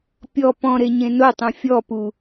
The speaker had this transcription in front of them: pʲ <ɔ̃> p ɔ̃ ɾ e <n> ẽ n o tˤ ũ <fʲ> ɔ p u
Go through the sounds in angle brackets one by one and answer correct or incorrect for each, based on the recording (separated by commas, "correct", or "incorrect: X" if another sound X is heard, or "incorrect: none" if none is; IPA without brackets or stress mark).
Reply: incorrect: ɔ, incorrect: ɲ, correct